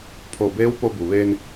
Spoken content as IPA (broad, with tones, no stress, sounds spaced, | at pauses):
pʰ o˧˩ b eː˧˥ w p o˧ b u˩ ʋ eː˧ n